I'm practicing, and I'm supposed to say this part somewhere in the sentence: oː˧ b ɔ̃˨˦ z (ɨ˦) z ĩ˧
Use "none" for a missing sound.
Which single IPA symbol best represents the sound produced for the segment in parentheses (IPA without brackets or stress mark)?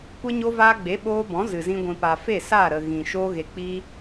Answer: ɨ˨